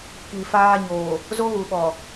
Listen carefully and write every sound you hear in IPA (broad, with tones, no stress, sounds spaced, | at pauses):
k i˨ f aː˦ ɲ oː˨ | z o˦ ɣ u˨ ɓ ɔ˨